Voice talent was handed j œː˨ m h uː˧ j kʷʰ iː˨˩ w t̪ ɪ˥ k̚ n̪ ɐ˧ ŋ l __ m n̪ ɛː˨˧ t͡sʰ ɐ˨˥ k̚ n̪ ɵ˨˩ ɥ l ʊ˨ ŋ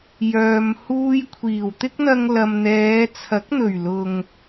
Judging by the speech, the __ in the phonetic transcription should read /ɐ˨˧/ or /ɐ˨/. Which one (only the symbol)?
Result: ɐ˨